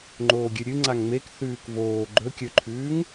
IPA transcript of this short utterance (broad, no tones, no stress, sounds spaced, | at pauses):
ŋ͡ǃ oː ɡʲ ɨ ɾʲ ɨ ŋ͡ǀ a ŋ ŋ͡m e k θ ʉː k v oː ɡ͡ǃ ɵ kʲ ɵ ǃʰ ʉː ŋ